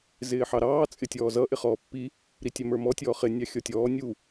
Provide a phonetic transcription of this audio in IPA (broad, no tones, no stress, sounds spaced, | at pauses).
z ɪː ħ ɑ ɾ ɑː t͡sʼ ɪ tʲ ɔː z ʌ ʔ ɪ χ ɔː pː i | ɾ i tʲ æ m ə˞ m ɔ tʲ ɔː χ ɪ nʲ ɑ xʲ ɔ tʲ ɔː nʲ u